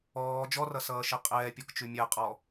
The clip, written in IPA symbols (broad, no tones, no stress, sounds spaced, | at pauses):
ɔː d͡ʒ ɔ r ʌ s ʌː ʃ e qʼ ɛː pʲ ɔ k t͡ʃ ʉ mʲ ɛ qʼ ɔ